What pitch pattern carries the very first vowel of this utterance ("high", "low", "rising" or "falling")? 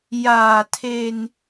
low